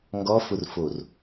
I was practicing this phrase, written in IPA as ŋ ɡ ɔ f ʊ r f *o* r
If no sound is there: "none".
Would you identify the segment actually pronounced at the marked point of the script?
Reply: o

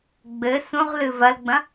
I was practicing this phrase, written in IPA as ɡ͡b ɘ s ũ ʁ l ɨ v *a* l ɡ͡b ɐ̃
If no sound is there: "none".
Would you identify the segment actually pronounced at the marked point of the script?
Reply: ɐ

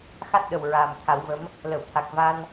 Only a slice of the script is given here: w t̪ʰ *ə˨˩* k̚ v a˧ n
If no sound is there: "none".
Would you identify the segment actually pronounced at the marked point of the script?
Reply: a˨˩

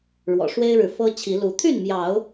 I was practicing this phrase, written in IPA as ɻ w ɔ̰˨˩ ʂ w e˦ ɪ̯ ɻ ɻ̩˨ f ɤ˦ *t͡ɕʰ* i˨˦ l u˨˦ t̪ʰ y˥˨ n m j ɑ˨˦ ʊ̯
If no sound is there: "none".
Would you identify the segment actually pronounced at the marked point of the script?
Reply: t͡ɕʰ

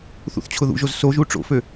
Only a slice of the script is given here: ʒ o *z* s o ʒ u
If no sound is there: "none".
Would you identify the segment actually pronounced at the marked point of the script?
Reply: z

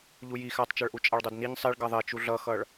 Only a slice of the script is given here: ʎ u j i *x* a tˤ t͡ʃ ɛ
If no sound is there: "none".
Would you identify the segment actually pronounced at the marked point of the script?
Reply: x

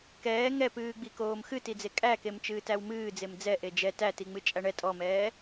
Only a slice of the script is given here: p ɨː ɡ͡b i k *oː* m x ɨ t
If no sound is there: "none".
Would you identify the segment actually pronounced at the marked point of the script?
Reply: oː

